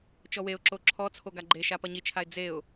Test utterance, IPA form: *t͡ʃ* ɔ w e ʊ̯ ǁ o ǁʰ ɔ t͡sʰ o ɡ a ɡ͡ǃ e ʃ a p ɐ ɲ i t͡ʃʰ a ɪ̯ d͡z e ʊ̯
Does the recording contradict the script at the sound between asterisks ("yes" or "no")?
no